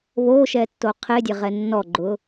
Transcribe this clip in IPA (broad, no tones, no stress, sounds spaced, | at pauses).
β o ʃ ɛ tː o qʰ e dʲ ɛ ʁ ɛ nː ɔ ɡ͡ǃ ʊ